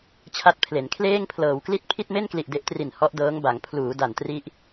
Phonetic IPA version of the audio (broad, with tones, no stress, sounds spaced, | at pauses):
t͡ɕʰ a˦˥ t̚ pʰ l e˩˦ n kʰ l eː˥˩ ŋ pʰ l ɤː˩˦ w k l i˥˩ t̚ pʰ i˥˩ t̚ m e˥˩ n k l i˨˩ ʔ d e˦˥ ʔ t r i˨˩ n h ɔ˦˥ ʔ d ɤː˦˥ ŋ b a˩˦ ŋ pʰ l uː˩˦ d a˨˩ n t r i˦˥ ʔ